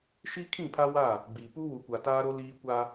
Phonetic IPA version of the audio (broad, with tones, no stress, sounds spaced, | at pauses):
ʃ i˦ kʰ ĩ˦˨ pʰ a˦ w a˦˨ | ɡ͡b i˨ p u˦ w u˨ kʷ a˨ t aː˦ ɾ o˦ l iː˦ kʷ a˦